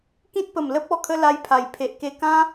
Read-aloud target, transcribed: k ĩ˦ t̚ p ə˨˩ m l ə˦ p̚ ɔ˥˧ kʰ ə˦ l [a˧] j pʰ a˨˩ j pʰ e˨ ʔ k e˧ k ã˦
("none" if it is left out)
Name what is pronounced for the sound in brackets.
a˧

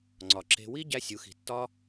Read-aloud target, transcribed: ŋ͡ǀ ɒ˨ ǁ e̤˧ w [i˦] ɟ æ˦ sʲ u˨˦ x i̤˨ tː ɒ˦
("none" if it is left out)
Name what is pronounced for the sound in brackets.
i˦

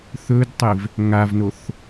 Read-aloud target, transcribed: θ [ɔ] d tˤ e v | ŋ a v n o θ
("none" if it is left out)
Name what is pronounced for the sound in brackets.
ɵ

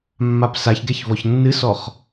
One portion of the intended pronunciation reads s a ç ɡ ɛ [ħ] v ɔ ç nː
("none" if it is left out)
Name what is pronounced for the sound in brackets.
ç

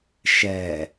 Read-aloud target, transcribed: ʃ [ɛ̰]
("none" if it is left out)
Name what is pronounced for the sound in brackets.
ɛ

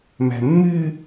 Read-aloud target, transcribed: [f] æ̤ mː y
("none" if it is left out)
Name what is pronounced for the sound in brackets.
m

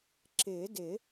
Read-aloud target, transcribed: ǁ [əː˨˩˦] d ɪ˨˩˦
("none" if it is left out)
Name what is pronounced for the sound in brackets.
ɪː˨˩˦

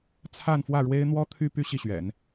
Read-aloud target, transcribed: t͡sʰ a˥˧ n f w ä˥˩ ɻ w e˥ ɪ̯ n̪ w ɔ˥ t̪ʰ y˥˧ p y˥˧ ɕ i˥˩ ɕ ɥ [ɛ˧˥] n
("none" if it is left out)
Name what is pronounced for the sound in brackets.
ɛ̰˨˩˦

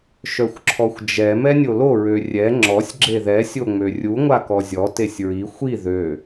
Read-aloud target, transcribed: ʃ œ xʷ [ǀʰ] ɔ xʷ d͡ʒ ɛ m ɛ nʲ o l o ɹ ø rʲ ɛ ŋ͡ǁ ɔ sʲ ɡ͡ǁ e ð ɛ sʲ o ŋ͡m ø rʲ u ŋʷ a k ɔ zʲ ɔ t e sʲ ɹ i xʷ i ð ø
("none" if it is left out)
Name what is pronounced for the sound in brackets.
ǁʰ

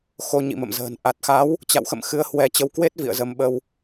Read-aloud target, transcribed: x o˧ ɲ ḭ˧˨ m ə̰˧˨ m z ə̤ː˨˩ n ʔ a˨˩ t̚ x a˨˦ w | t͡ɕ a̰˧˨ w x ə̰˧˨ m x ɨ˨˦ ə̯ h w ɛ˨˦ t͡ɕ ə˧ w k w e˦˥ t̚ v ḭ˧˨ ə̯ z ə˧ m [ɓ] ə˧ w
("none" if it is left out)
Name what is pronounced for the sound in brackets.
ɓ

